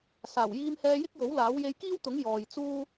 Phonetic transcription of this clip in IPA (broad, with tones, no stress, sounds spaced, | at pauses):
s aː˨˩ w j iː˧ m h ɛː˧ j ɪ˥ k̚ j o˨˥ w l aː˨˥ w j e˧ j k iː˥ w t̪ ʊ˨˥ ŋ j ɔː˨ j t͡s uː˥